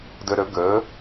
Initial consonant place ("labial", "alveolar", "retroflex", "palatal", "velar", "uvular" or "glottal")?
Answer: alveolar